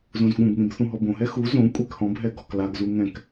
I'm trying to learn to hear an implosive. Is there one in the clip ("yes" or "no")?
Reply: yes